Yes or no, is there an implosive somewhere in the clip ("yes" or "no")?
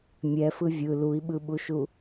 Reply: yes